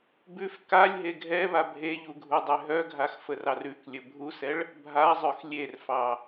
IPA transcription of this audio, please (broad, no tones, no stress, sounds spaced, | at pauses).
b ʉ f k a lʲ ɦ e ɡʱ ɛ β a bʱ e ʎ u ɡʱ u dˤ e ɦ œ ɡʱ a x f ə r ɑ r ʉ k lʲ ə bʱ u s ɛ ɭ | bʱ a zˤ œ x lʲ e r f ɑ